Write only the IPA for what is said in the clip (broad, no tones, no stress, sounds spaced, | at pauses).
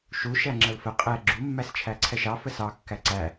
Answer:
ʃ u ʃ æ ŋ͡ǁ ə l f ə qʼ ɛ ɡ͡ǁ u mː æ s t͡ʃʰ æ ǀʰ ɛ ʃ ɑ f ə s ɑ kː æ ǀ æ